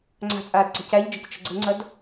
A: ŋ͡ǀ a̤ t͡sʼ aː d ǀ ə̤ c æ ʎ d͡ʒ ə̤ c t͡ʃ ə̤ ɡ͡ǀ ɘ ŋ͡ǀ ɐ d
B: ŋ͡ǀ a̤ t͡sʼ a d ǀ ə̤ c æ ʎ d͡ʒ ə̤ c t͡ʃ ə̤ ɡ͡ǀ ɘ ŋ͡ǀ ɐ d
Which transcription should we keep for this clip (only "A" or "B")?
A